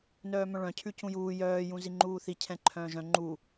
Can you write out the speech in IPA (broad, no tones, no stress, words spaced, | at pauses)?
nœːmœ̃ɭœ̃ cʰʉcũjuː jœː jũziŋ͡ǃuːθi cʰɛ̃ǃʰœ̃ːʒœ̃ ŋ͡ǃu